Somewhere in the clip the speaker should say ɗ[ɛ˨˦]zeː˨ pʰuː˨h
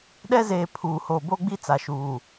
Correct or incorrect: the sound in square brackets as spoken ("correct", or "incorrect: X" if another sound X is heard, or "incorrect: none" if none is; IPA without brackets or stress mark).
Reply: incorrect: ɛ˦